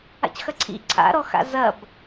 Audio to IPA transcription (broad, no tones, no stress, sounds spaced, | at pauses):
a̰ c x ɐ ǀʰ ḭ ǀʰ a̰ ɾ ɔ x a̰ z ɐ b